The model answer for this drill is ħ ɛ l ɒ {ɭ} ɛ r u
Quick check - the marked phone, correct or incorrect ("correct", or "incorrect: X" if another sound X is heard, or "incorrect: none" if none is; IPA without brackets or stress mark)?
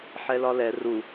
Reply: incorrect: l